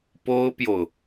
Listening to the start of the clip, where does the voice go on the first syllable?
high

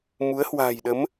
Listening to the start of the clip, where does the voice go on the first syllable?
rising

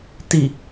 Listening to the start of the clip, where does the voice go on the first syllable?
low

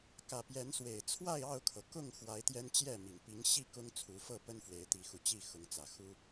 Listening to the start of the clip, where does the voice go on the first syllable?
low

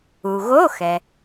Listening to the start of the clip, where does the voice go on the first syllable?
low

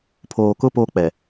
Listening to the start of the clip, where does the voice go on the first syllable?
low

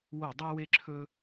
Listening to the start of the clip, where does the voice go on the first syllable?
falling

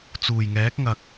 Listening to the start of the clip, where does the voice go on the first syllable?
low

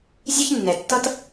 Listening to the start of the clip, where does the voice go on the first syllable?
high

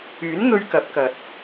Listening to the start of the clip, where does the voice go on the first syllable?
rising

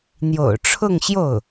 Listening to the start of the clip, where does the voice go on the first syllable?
low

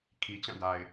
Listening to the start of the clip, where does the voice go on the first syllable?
low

